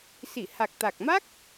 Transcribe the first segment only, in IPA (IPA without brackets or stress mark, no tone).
s